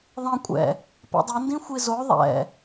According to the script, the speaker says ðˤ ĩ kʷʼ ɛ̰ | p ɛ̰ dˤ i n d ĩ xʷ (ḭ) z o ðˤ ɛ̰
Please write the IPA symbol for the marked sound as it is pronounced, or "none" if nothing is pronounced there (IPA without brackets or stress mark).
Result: i